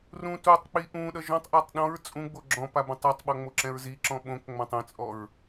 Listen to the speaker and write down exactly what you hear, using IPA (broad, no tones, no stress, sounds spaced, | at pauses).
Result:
r ũ t u tˤ k͡p i ʔ ũ ɗ ʌ ʒ ɔ̃ tˤ ʔ a tˤ ɗ ɔ̃ ɹ t͡sʼ ũ ɡ͡b o ɡ͡ǁ ɔ̃ p a b ũ tˤ a tˤ ɓ ɔ ŋ͡m o ǁ ɛ̃ ɹ z i ǁ ɔ̃ ɓ õ k ŋ͡m ã tˤ ɛ̃ t͡sʼ ɔ ɹ